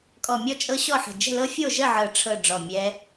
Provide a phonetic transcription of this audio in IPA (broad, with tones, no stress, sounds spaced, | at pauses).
kʼ ɔ˧˩ mʲ ɔ˥˨ t͡ʃʼ ɤ˦˥ ɕ ɔ˥˨ ħ ə̤˧˩ d͡ʒ ə̤˥˨ l ɤ˦˥ fʲ o˥˨ ʒ ə˥˨ ʕ ɤ˧˩ ʈ͡ʂʰ ɤ˥˨ ɖ͡ʐ ɔ˥˨ mʲ ɛ˦˥